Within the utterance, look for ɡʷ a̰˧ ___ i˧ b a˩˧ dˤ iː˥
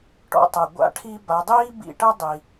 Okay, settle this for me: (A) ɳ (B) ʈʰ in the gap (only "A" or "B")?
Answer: B